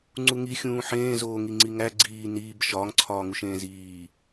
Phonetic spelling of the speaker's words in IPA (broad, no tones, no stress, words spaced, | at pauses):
ŋ͡ǀuŋi xʲũːħẽːzoː ŋiŋ͡ǀiŋæ ɡ͡ǀiː niːb ʃɒːŋǀʰɒːŋuʃ ẽːziː